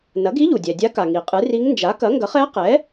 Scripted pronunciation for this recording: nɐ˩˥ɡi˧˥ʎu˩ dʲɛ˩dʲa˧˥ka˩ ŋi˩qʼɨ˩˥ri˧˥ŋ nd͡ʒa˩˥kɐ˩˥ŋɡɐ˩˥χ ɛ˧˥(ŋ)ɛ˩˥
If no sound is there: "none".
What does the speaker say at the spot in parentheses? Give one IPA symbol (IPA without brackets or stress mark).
q